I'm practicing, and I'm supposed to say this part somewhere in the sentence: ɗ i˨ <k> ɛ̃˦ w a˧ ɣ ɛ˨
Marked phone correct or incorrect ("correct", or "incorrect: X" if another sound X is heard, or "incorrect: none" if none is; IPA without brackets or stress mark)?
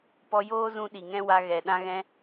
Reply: incorrect: ŋ